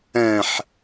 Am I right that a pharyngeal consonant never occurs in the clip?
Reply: no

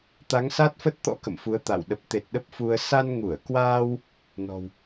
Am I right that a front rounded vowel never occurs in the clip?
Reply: yes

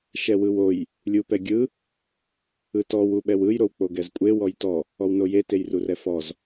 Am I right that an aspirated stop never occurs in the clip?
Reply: yes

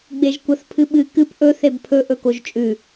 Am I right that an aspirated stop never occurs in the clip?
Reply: no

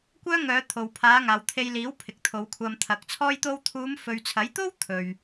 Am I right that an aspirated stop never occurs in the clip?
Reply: no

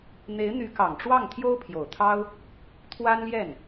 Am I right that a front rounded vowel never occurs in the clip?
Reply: no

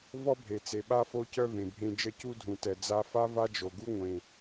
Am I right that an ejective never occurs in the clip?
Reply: yes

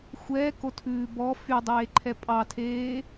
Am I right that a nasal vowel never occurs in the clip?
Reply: yes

